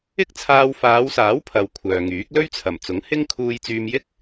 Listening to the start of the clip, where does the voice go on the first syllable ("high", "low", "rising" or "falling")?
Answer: high